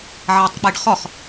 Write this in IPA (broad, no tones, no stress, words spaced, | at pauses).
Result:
ʕatˤk͡peɖχɔχ